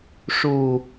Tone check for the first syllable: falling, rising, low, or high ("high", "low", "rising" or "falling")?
low